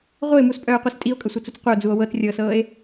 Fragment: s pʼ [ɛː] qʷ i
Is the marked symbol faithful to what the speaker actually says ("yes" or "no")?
no